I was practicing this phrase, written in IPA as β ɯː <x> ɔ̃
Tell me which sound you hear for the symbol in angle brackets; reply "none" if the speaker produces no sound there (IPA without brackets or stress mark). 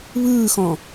x